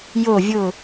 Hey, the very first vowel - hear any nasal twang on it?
no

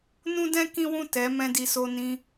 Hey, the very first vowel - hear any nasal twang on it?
yes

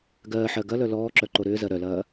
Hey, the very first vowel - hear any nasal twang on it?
no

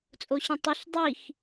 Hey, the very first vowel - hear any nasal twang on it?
no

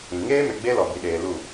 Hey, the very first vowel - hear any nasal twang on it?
yes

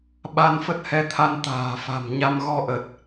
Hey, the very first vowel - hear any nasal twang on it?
no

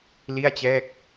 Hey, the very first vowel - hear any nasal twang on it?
no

